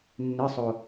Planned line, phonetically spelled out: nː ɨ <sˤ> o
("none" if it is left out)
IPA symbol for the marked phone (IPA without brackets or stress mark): sˤ